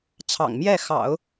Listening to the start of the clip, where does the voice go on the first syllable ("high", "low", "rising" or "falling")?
low